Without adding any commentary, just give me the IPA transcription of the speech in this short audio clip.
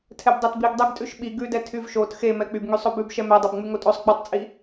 tʰ ɛ b dˤ ɛ t b i ɡ dˤ ɛ ɡ tʼ ʉ ʃ ɓ i ɡ ʉ d ɛ tʰ y v ʃ o t x e m ɛ k͡p y b ŋ y sˤ o b ʉ b ʃ ɛ m ɛ dˤ o b ŋ͡m y ŋ o tʼ o sˤ ɡ͡b ʉ tˤ t͡sʼ i

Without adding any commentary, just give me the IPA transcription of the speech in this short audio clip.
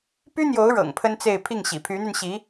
p y˥ n̪ j o˧˥ ʊ̯ ɻ ɤ̰˨˩ ŋ pʰ ə˥ n t͡s e˥˧ ɪ̯ pʰ i˥˩ ŋ ɕ ḭ˨˩ pʰ y˧˥ n̪ y˧ n ɕ i˧˥

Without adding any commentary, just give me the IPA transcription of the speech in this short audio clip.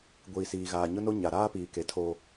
ɡʷ iː˨ s iː˨ ɣ aː˨ ɲ ʊ˦ n o˦ ɲ a˨ ɾ aː˦ p iː˨ k e˨ tʰ o˦

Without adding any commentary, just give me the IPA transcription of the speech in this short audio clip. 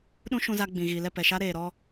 ɗ ũ˦ ʃ ũ˧ z a˧ ɡ͡b ĩ˨ ɣ i˨ l ɛ˦˨ p ɛ˨ ʃ a˦ ɾ eː˨ ɾ ɔ˧

